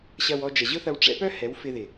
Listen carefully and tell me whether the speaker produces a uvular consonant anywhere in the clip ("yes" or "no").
no